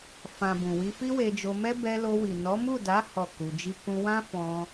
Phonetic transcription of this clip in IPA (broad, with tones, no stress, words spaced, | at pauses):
fã˨ bũ˨wi˧fi˦ we˧d͡ʒo˧mɛ˦ bɛ˧lo˧wi˨ nɔ˨˦mu˦˨da˨˦ hɔ˦˨ku˧d͡ʒi˦ kũ˧wã˦fɔ̃˧